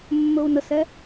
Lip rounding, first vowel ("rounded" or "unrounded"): rounded